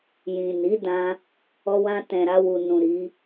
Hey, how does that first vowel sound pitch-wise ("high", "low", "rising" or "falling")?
low